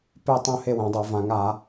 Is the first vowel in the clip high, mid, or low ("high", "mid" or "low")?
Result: mid